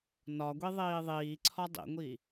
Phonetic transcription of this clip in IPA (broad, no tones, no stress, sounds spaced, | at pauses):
n ɒ ɡʷ i ðˤ iː ðˤ iː ǀʰ ɒ dˤ ḭ ŋʷ i